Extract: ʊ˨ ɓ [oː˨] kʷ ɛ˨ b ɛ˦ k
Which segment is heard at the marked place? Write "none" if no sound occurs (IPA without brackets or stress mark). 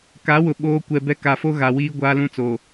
oː˦